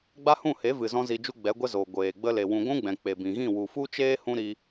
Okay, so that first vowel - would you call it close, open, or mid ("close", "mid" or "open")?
open